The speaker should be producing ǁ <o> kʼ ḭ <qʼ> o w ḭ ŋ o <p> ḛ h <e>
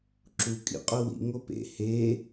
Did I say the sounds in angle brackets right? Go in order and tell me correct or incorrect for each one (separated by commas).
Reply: incorrect, correct, correct, correct